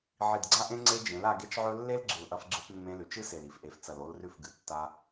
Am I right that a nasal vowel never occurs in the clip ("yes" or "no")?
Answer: no